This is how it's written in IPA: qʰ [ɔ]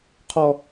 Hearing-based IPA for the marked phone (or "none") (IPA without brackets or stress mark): ɔ